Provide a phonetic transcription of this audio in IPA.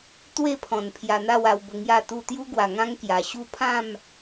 t̪we˥˧pʰɔ̃˨˩n pʰja˧n̪a˥˧wa˧w bə˧ŋja˥˧t̪u˥˧ t̪ju˦ɡwa˨˩ŋã˦ŋ kja˨˩ ɕu˥˧ pʰã˥˧m

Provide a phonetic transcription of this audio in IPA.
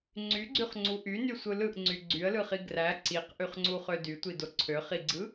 ŋ͡ǀyɡ͡ǀyχŋ͡ǀu ʔynysʷɯ lɯʔŋ͡ǀy ɡ͡ǀyə̯lɯχi ɡræ ǀiqʔyχŋ͡ǀuχø dytʷido ǀʰøχiɡ͡ǀɯ

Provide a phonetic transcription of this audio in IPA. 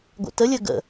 ɡʷə̰təlʲə ɡə̰

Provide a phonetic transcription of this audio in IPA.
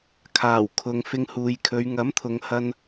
kʰaː˨˩wkʰʊ˨ŋ fɪ˧ŋhuː˨jkʰɵ˨˧ɥ ŋɐ˨˥mt̪ʰʊ˨ŋhɐ˧n

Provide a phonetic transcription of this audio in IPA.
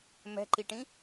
mɛ̤ǃiʈĩ

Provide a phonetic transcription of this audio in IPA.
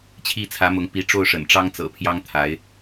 t͡ɕʰi˥˩t͡sʰä˧˥mʊ˧˥ŋ pi˧˥ ʈ͡ʂo˥˩ʊ̯ʂə̰˨˩nʈ͡ʂɑ˥ŋt͡sɤ̰˨˩ pʰjɑ˥ŋ t̪ʰa˧˥ɪ̯

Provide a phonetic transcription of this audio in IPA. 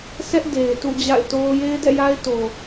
sʰɛ˦ʔ de˨ɪ̯ tṵ˦˨d͡ʑa̰˦˨ɪ̯to˦ʊ̯ je˦ɪ̯dɛ̰˦˨ja˦ɪ̯ to˨

